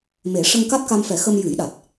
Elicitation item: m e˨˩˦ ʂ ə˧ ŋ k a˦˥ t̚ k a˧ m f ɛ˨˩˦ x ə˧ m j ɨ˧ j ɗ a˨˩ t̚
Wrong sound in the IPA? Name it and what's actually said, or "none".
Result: ɨ˧ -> ɨ˨˩˦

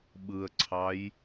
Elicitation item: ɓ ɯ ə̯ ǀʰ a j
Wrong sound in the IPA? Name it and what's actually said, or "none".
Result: a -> ɑ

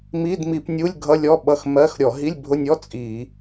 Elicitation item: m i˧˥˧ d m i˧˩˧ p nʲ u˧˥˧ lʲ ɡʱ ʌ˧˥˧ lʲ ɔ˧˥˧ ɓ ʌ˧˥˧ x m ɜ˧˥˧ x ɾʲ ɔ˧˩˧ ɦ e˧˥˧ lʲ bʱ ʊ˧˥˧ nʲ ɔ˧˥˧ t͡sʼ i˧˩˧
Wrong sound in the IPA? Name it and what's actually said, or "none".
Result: e˧˥˧ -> i˧˥˧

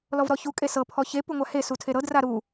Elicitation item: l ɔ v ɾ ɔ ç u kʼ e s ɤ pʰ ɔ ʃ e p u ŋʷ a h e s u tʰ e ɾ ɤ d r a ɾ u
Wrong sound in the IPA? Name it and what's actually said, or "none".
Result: ʃ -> ç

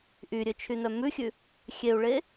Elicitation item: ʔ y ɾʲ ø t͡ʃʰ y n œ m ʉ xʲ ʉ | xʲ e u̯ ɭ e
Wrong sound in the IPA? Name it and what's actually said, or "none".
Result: none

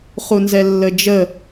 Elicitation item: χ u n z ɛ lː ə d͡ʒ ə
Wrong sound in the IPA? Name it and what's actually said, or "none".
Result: none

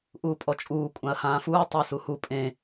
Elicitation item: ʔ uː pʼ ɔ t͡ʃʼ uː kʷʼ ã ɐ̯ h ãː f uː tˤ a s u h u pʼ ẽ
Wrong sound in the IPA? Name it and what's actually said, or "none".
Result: none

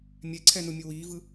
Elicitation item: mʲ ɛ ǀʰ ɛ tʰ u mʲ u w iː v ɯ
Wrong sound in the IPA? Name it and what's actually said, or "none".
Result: tʰ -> n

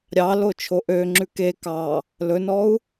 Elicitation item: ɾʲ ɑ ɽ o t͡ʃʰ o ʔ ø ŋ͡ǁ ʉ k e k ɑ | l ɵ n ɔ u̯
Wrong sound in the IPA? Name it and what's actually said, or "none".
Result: ɽ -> l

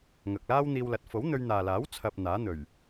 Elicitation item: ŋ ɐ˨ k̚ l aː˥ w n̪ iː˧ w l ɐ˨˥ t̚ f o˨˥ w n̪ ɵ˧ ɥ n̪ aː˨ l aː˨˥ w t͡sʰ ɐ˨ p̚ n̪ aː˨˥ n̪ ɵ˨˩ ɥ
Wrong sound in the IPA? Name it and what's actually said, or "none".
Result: none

